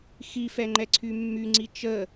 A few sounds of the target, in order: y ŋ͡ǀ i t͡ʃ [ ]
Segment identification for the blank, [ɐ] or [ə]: ə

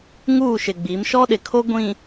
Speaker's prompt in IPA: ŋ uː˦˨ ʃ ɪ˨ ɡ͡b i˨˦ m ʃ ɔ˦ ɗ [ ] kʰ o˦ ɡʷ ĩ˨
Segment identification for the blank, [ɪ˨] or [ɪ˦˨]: ɪ˨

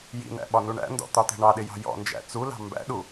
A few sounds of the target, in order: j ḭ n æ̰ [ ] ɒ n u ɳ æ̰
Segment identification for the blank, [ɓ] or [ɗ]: ɓ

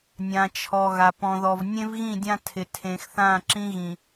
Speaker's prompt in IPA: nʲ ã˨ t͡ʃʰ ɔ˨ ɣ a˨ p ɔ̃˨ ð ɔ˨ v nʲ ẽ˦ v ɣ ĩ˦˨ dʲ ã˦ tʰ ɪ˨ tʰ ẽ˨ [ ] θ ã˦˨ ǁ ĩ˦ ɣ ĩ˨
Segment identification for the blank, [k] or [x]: x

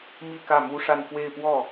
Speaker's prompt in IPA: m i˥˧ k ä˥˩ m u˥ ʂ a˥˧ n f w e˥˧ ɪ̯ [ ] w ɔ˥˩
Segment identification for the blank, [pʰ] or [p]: p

